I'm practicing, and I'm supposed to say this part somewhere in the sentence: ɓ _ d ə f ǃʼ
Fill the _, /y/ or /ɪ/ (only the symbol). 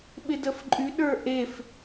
ɪ